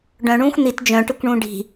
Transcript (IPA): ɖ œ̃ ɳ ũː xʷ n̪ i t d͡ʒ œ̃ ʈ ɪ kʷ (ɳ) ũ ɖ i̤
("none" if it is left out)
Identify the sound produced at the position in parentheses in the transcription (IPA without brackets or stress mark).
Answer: ɳ